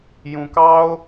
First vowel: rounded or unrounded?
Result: rounded